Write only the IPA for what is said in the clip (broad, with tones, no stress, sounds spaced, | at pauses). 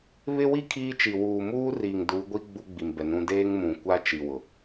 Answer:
β ɪ˦ w i˦ kʰ iː˦ t͡ʃ i˨ w uː˨ m uː˦ r iː˨ ŋ d u˨˦ ɡʷ i˦ ɡ͡b u˦ ɡ͡b i˨ m b ɛ˨ n ũ˦ d eː˦ ŋ m ũ˨ kʷ a˦ t͡ʃ i˨ w ʊ˨